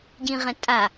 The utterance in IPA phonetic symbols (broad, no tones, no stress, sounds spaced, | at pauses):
ɟ ĩ ʁ ɛ̃ tʼ a